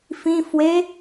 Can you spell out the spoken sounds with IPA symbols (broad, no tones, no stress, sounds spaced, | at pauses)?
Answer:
f ĩ f w e